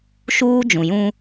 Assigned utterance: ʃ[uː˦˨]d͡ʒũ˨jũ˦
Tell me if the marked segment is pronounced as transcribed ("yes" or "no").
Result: no